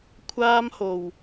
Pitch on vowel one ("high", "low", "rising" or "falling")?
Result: high